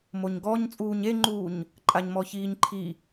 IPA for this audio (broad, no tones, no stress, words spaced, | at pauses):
moɲɡɔɲ t͡sʼuːɲeŋ͡ǃuːɲ | ǃʼaɲmɔçiːɲǃʰi